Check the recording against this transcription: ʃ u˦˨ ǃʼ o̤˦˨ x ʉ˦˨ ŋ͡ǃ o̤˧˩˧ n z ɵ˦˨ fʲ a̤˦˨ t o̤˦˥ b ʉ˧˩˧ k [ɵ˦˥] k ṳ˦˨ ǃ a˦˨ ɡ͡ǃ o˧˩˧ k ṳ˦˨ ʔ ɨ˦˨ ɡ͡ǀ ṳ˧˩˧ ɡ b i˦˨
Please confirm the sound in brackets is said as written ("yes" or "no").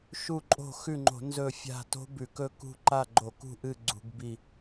yes